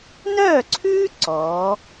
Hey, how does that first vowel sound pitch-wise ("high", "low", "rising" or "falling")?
falling